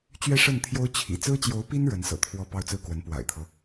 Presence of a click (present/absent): absent